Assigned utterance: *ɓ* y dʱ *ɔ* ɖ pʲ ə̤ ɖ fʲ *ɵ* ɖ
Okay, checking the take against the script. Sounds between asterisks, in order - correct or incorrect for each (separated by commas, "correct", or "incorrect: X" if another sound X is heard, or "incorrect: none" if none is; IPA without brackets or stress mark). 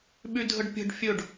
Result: correct, incorrect: ə, correct